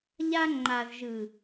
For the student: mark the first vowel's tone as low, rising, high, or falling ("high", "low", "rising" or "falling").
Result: high